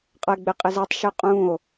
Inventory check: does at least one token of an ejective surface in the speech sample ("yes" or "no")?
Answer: yes